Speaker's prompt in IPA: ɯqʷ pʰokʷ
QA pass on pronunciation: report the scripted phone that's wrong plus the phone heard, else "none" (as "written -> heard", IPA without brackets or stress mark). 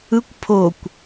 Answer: qʷ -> kʷ